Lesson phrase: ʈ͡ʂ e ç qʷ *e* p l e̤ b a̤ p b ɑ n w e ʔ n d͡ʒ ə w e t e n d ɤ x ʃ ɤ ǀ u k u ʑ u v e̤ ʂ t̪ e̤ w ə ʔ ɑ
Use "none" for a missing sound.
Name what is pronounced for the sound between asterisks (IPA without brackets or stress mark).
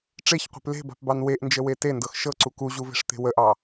e̤